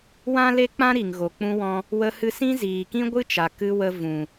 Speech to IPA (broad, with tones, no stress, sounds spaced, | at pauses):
w ã˦ l e˦ k͡p ã˦ ɾ i˨ ŋ ɣ o˨ k͡p ũ˧ w ɔ̃˧ | w ə˧ h ɨ˧ s ĩ˦ z iː˨ k ĩ˦ ɡʷ ɨ˦ t͡ʃ a˨ k ɨ˧ w ə˧ v ũ˨